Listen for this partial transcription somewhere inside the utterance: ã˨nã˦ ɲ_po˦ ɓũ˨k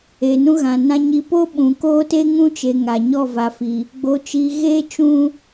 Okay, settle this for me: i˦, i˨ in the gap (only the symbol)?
i˨